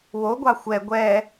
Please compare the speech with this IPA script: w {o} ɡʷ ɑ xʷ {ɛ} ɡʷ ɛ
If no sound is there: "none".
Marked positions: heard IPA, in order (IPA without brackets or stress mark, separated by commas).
o, ɛ